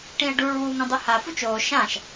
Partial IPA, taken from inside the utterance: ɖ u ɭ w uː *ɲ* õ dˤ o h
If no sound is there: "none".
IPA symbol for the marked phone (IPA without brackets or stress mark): ŋ